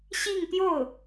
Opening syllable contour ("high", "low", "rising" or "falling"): falling